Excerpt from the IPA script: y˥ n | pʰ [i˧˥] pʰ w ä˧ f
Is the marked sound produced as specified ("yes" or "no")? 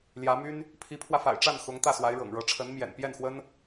yes